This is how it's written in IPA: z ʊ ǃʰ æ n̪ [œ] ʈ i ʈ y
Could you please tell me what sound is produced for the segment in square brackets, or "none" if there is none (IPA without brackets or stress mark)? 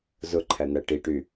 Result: æ